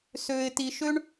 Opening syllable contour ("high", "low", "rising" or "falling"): low